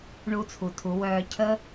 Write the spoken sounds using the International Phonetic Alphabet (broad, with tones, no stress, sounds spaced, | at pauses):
ɳ u˧ t͡sʰ u˩ tʰ u˩˧ w œː˧ cʰ ə˥